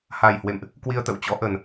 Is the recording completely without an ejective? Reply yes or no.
yes